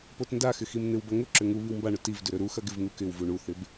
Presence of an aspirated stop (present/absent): absent